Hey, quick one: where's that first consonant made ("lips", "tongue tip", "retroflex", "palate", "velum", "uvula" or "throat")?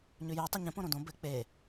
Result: palate